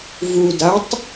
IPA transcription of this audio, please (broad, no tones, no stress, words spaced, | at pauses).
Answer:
vudatˤ